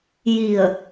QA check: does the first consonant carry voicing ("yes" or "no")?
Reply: yes